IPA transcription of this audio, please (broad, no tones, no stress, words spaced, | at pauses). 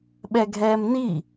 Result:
ɓɛɡʱɛːmni